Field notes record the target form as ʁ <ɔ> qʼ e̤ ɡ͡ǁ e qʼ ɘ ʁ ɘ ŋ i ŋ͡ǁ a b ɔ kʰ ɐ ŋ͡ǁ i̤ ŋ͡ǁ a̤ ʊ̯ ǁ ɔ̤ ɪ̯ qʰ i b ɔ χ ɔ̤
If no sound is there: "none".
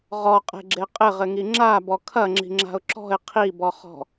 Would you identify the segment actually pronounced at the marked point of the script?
ɔ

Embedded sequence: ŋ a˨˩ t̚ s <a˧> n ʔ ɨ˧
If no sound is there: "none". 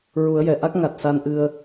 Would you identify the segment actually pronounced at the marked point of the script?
a˧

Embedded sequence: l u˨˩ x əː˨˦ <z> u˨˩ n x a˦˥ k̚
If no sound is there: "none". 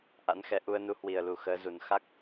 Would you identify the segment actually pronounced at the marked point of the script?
z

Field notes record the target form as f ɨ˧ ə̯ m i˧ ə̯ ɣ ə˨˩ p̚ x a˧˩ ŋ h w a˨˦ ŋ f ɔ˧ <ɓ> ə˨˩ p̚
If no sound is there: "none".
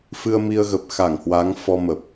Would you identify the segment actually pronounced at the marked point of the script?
m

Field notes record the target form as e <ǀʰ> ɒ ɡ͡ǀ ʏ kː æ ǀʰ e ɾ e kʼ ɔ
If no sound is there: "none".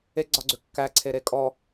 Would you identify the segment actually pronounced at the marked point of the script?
ɡ͡ǀ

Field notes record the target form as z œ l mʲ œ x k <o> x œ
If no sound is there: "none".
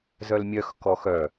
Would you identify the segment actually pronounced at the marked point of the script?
ɔ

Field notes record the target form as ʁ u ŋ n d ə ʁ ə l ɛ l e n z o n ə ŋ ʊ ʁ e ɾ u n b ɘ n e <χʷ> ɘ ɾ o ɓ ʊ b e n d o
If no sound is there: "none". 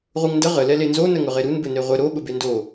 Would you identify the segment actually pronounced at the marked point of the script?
ʁʷ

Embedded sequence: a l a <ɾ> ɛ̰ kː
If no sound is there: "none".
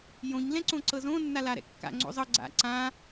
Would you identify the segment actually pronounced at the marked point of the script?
ɾ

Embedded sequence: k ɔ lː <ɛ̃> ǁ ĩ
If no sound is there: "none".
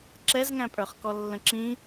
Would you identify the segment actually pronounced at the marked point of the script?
ə̃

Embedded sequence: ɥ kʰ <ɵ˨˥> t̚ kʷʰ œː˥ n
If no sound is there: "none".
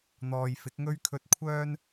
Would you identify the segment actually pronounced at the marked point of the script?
ɵ˧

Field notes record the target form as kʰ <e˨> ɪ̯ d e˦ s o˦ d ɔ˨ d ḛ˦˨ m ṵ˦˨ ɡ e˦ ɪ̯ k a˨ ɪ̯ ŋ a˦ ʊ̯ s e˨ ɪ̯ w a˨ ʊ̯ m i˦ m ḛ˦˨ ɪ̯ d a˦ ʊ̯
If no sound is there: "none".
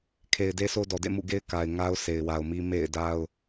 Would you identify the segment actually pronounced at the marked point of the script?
e˨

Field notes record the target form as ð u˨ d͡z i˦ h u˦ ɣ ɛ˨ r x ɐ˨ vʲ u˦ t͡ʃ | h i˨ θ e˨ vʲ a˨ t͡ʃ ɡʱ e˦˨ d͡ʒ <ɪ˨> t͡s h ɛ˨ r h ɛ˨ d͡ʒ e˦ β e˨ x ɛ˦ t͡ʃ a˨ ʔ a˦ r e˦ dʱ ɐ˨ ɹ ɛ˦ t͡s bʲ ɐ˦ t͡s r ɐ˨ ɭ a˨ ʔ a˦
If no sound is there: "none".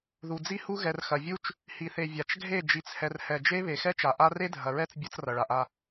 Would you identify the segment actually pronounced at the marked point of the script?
i˨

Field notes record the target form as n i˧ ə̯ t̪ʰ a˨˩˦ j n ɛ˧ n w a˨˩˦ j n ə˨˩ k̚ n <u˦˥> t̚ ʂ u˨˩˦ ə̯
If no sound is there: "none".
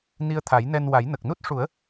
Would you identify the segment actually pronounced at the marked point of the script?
u˦˥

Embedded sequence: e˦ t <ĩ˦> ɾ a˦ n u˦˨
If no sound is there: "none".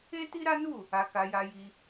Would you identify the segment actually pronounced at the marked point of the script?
i˦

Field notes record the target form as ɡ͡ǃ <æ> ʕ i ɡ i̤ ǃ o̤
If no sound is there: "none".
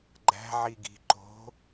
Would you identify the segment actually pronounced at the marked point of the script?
æ̤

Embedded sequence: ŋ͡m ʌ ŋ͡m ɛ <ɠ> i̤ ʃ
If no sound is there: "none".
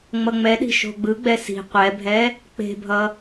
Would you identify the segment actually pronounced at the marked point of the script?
ɗ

